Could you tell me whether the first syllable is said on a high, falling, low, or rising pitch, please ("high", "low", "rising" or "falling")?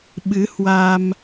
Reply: rising